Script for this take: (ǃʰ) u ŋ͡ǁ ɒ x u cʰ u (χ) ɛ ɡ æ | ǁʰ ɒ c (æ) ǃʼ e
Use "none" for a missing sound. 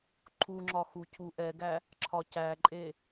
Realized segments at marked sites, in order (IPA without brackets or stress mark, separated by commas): ǃʰ, ʔ, æ